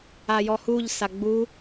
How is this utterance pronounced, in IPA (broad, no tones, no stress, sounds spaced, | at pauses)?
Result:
a j ɔ h u ʎ s a ɡ͡b u